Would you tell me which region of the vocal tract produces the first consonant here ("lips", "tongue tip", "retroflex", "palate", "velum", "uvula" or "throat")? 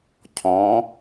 palate